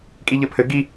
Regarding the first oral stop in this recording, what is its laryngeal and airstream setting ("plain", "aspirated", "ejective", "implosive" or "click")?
ejective